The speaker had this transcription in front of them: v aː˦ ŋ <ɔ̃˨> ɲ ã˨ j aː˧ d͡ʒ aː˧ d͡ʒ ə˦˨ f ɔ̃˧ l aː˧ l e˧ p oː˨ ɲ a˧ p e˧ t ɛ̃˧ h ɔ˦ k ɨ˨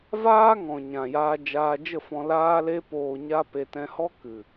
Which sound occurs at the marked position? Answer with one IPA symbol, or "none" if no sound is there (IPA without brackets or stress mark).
ɔ̃˨